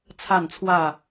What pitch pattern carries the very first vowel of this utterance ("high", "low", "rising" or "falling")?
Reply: falling